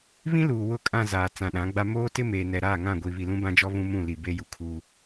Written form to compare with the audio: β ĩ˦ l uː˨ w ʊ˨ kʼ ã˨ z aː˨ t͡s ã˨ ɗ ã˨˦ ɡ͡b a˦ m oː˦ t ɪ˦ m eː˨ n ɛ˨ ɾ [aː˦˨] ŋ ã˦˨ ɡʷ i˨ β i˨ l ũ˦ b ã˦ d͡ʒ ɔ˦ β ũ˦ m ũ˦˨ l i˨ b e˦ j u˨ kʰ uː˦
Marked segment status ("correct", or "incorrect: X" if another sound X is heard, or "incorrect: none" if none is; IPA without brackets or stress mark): correct